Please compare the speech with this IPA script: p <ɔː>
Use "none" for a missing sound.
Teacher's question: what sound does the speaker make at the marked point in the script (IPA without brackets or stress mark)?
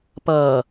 ʌː